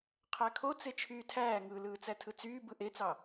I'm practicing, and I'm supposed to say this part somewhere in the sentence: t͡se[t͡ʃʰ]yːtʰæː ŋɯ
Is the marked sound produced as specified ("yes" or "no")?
yes